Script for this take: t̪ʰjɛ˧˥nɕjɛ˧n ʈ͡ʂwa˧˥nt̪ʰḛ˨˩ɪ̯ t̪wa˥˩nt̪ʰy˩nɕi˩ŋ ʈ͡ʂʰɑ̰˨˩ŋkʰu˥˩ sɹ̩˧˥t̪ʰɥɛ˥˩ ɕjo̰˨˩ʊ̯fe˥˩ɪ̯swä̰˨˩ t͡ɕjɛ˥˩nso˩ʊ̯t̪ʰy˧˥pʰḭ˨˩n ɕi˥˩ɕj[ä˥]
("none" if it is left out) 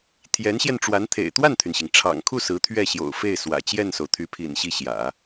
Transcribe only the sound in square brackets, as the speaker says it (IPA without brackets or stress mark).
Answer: ä̰˨˩˦